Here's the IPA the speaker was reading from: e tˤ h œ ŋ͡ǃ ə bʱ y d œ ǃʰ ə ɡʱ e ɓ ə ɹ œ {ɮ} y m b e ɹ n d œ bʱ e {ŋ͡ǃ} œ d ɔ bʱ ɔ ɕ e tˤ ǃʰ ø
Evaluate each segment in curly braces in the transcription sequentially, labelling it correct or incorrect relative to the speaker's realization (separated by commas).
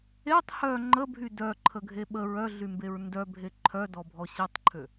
correct, incorrect